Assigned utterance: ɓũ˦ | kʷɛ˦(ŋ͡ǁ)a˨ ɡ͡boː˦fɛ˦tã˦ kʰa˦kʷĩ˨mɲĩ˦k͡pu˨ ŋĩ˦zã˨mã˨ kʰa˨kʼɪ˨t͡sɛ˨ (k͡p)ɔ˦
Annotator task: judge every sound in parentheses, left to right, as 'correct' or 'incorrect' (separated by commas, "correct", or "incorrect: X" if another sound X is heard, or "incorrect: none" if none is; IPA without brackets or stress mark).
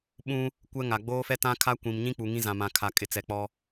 incorrect: ŋ, correct